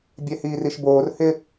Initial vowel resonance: oral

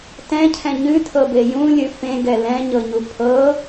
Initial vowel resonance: nasal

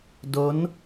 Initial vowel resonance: oral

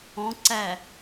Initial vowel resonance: nasal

